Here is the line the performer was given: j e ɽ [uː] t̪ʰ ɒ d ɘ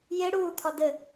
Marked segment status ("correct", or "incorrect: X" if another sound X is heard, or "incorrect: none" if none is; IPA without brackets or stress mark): correct